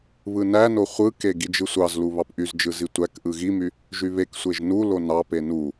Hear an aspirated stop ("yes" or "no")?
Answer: no